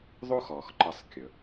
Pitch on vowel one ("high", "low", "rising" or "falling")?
high